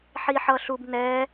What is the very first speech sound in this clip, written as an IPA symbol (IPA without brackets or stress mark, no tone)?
ħ